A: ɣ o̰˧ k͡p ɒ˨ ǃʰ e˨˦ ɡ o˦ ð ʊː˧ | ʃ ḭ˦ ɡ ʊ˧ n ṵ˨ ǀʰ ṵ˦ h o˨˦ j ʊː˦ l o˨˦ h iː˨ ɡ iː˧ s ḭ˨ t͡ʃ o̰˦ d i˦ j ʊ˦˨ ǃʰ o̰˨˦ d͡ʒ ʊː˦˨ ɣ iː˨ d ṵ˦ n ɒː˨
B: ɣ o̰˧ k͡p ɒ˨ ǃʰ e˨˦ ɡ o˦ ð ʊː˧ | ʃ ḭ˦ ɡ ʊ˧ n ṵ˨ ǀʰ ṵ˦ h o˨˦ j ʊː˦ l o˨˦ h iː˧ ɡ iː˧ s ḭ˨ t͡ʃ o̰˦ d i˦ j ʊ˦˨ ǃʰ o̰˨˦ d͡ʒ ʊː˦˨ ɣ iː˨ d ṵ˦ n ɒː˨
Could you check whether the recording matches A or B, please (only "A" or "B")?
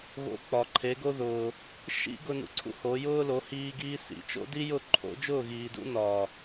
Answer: B